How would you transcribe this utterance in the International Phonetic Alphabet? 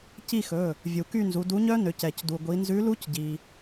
c i˦˨ x ɵ˩˧˩ | vʲ u˩ k y˦˨ n z u˩˧ d u˨˥ ɲ œ˦˥ n ø˩˧ c ɛ˩ c d u˩ ɡʷ i˩˧ n z ʉ˨˥ l u˦˥ c ɟ i˩

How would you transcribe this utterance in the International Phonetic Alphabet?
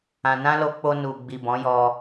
ã˨ n ã˧ l o˧ k͡p o˧ n u˨ ɡ͡b i˨ b ɔ̃˨˦ j ɔ˧

